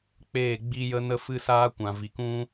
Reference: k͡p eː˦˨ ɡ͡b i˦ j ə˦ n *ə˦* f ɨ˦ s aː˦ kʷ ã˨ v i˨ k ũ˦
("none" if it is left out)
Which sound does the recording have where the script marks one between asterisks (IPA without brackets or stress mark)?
ə˦